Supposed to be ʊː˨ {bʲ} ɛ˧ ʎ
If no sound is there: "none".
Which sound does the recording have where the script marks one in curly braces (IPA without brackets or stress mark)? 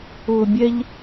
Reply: bʲ